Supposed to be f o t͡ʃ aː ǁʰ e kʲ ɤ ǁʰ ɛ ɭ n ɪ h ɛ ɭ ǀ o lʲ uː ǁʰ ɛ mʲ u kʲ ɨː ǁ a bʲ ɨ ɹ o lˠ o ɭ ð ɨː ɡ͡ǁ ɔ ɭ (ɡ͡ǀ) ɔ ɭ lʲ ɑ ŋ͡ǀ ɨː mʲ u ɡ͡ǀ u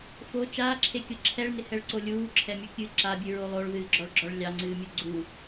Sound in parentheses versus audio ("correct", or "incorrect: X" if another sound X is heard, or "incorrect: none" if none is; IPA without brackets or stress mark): incorrect: ɡ͡ǁ